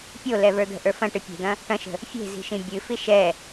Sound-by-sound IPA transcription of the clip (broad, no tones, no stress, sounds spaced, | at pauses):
pʲ o l ɛ v ə˞ d̪ ə̤ ʔ ə˞ f ɐ̃ ʈ ɨ pʲ e̤ d̪ ɐ̃ | ʈ ɐ̃ ʃ ə̤ | fʲ e̤ z i̤ ʃ ĩ bʲ ɨ f i ʃ ɛ